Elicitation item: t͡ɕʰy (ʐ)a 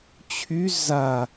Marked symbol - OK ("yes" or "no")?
no